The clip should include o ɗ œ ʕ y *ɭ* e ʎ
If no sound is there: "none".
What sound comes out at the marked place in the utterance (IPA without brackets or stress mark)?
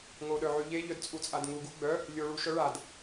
ʎ